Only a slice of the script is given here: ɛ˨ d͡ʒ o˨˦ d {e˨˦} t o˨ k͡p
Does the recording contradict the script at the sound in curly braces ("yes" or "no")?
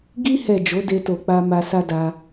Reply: yes